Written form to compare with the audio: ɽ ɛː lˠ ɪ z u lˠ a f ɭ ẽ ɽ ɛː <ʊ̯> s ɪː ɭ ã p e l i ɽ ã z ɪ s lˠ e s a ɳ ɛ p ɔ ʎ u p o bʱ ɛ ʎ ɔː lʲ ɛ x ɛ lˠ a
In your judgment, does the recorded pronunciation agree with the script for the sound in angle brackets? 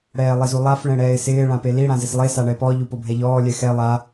no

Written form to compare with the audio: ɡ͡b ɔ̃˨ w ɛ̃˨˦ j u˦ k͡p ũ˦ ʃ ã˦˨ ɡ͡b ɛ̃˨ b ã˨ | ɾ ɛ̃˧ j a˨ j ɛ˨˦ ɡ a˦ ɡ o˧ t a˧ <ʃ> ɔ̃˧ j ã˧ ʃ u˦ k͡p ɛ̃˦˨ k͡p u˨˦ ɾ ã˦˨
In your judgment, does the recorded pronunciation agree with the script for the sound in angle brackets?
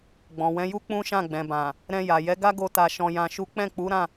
yes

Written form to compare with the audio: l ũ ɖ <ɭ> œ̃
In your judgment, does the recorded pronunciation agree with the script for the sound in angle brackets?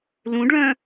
yes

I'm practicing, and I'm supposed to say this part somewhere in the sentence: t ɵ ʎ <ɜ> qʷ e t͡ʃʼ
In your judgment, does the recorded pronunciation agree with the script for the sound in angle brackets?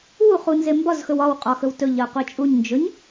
yes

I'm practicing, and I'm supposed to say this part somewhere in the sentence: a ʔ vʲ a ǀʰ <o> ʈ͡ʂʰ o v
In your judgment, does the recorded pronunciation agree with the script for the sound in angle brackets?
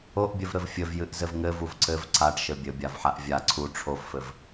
no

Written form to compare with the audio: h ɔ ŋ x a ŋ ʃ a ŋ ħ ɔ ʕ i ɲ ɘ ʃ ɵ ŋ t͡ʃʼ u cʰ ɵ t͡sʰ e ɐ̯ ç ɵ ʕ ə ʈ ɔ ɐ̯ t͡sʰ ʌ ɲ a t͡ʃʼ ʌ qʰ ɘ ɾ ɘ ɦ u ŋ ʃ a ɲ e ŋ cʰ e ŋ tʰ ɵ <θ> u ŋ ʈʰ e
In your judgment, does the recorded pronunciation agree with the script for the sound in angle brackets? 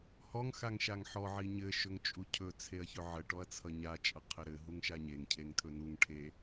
no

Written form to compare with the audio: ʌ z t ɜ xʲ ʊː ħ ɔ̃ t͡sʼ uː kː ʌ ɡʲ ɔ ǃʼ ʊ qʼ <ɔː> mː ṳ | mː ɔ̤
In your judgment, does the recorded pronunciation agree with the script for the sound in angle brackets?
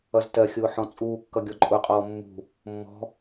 yes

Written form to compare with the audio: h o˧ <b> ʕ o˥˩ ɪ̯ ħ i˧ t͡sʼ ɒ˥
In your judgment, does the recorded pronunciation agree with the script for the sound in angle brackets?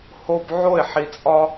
yes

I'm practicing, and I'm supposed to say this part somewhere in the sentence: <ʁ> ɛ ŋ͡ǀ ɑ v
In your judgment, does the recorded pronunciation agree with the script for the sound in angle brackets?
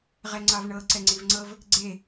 yes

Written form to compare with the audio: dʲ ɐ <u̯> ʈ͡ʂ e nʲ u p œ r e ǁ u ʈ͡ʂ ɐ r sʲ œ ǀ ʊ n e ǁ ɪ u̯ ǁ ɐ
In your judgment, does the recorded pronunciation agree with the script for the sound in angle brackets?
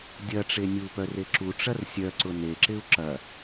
no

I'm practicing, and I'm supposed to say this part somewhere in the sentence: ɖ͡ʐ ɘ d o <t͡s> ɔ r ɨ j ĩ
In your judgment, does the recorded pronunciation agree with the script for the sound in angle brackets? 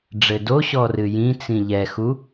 no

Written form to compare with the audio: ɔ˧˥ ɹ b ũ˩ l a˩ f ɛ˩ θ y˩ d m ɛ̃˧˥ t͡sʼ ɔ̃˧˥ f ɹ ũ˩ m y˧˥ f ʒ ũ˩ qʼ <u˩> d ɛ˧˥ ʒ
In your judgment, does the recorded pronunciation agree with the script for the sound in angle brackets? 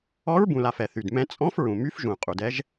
yes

